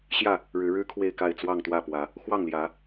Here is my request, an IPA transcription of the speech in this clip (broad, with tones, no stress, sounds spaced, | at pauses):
ɕ j ä˥˨ | ɻ ɻ̩˨˦ ɻ ɻ̩˦ kʰ w e˥˨ ɪ̯ k a˥˨ ɪ̯ t͡s w ɑ˥˨ ŋ t̪ w ä˥˨ p w ä˨˦ | x w ɑ˥˨ ŋ l j ä˨˦